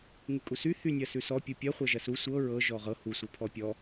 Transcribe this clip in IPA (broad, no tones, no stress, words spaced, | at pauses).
ŋykʼusy θynʲɐsʉsɔ pʲupʲɐ χʷɐʒɐsu sʷɤ ɹɤ ʒɔʁɤ hu sʷɤpʰɔpʲɔ